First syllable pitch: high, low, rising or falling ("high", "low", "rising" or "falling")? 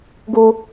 high